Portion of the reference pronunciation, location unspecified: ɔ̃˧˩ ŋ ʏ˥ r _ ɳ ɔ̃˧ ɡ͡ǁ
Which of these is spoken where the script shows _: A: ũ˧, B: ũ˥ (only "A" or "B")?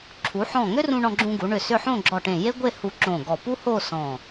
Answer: A